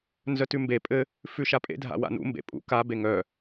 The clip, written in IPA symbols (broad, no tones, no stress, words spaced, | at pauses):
nzœtʉmbe pʼɘ | fʉʃapʼḛ dʱa̰wa̰nṵ mbḛpʼṵ ka beŋœ